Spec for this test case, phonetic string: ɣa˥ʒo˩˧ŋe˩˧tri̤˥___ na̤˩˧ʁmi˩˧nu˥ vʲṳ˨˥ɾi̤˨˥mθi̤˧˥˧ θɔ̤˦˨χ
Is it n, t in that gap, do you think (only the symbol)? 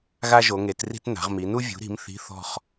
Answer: t